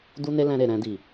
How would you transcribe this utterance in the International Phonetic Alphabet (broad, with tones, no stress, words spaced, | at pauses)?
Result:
du˦ne˦lɛ̃˧ɾe˨ ɾɛ̃˧di˨